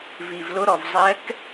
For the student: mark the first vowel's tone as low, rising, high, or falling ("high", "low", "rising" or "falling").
low